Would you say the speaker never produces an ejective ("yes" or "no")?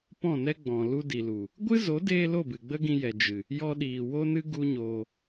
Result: yes